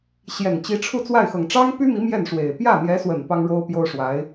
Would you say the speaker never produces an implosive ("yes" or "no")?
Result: yes